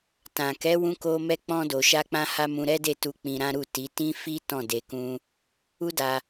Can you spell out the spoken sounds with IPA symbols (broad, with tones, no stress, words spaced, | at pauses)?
tã˨kɛ˨˦wũ˧ko˧ mɛ˧k͡pɔ̃˧do˨ ʃa˧k͡pã˧ha˧ mũ˧ɾɛ˦de˦˨tu˧ k͡pĩ˧ɾã˦ɾu˦˨ti˨˦ tĩ˦ fi˦ tɔ̃˦˨de˧kũ˦ | u˦da˧